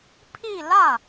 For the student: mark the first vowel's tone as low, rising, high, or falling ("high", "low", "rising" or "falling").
falling